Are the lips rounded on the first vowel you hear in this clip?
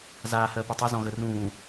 no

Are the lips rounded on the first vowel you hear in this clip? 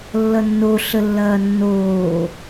no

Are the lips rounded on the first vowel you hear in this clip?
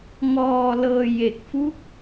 yes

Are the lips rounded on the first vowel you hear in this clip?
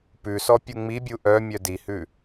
yes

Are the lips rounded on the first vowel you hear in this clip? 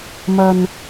no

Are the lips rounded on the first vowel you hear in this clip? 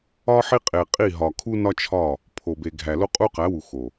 yes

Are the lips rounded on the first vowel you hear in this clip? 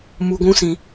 yes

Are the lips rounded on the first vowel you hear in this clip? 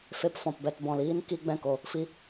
no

